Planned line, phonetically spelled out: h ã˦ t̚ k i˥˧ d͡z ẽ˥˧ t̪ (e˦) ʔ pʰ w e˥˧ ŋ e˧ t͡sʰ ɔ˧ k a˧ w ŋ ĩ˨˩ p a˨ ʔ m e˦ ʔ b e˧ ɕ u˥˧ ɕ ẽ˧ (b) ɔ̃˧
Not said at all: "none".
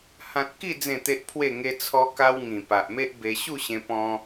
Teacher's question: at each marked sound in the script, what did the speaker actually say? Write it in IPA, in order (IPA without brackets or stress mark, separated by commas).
e˦, p